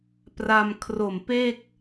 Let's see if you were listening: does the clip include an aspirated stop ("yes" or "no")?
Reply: yes